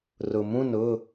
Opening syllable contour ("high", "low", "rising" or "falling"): low